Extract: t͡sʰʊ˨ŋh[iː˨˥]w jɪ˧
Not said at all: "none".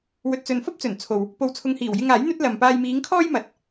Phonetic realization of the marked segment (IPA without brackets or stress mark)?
iː˨˩